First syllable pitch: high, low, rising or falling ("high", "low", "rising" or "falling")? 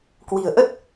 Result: low